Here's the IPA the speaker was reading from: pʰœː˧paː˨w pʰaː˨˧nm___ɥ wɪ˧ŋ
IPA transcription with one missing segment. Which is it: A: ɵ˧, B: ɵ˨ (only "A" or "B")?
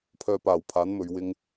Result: B